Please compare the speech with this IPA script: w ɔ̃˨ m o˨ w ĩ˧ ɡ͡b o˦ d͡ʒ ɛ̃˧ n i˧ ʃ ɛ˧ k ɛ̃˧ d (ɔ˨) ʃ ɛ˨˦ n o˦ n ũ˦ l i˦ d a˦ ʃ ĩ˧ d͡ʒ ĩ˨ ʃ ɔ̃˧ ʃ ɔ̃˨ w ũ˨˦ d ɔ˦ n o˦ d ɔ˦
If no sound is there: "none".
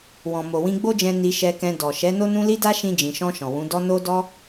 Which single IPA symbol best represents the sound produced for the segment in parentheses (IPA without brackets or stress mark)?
ɔ˨